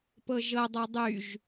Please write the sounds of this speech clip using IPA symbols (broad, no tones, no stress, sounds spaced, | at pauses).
p ɤ ʒ ɤ dˤ ɤ dˤ y ʒ